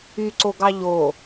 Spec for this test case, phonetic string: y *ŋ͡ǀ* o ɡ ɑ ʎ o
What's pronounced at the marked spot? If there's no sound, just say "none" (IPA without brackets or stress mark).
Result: ǀ